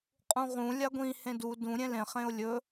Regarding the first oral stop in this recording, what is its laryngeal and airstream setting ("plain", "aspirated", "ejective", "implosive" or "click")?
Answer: ejective